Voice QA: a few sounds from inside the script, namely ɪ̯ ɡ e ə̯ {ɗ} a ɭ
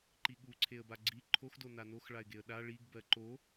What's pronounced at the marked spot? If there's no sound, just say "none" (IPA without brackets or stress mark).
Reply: ɗ